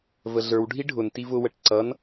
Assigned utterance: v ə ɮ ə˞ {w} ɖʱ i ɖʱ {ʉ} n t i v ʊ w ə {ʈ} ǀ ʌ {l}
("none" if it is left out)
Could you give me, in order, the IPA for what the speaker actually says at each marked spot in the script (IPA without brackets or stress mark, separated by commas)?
w, ʊ, ʈ, n